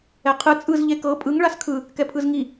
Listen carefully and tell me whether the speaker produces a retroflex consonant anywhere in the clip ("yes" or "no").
yes